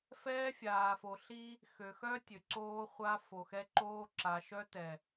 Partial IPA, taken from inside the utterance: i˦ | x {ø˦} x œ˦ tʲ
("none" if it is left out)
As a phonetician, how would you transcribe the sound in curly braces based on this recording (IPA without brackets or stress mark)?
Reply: ø˨